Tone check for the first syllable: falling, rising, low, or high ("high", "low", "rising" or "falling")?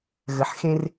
low